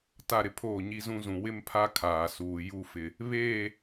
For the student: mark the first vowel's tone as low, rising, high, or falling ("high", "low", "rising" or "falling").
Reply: falling